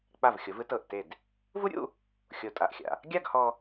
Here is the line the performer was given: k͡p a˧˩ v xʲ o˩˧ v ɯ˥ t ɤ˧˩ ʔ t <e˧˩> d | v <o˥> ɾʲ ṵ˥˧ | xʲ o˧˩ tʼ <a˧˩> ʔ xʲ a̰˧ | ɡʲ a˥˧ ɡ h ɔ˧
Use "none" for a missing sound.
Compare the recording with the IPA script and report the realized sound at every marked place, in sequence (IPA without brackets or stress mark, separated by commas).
e˧˩, u˥, a˧˩